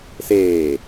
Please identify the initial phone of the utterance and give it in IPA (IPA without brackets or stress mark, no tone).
s